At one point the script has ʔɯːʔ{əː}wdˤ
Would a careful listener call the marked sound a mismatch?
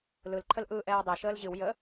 yes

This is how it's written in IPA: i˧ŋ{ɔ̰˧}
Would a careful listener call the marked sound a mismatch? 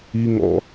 no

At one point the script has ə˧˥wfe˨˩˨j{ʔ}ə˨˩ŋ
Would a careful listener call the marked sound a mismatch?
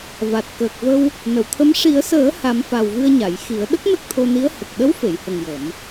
yes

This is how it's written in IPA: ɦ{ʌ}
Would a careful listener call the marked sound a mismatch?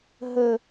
yes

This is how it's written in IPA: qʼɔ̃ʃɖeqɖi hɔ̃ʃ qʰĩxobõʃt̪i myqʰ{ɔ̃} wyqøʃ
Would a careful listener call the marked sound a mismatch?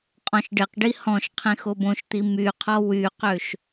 yes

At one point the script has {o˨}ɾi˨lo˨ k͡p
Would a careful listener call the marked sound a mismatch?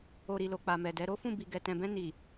no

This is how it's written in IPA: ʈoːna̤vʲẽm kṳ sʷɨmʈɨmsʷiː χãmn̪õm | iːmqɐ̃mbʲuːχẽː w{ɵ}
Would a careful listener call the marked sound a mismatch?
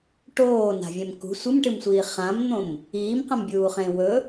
no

